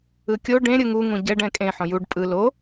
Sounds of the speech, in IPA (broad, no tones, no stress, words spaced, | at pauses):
ɯkʲo ɖẽ ɾʲɯŋu ŋũɟɛɖ ɛ̃kʼẽ ħõjuɖ pʼɯ lo